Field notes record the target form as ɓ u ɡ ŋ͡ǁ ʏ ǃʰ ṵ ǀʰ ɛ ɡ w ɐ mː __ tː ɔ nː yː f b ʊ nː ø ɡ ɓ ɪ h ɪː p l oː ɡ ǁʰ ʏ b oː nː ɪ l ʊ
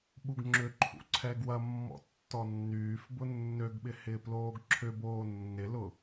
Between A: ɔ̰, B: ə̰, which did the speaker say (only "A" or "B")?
A